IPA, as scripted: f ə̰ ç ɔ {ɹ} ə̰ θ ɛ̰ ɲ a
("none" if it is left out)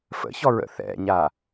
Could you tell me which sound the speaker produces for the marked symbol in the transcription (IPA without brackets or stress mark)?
ɹ